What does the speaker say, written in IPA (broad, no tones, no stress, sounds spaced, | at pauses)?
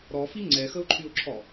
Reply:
ɾ ɔ f i ŋ͡ǀ ɛ x ə ʊ̯ ǃʰ y ʊ̯ ǁʰ ɔ